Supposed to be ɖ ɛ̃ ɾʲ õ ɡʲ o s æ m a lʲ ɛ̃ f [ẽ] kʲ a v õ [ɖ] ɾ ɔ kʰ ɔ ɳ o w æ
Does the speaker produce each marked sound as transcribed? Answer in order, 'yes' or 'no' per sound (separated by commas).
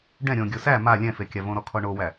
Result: no, no